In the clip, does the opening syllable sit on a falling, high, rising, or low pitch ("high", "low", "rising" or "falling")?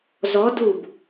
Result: rising